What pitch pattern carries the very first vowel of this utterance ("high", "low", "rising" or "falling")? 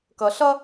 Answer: low